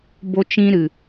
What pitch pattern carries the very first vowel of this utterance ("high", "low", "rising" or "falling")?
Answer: high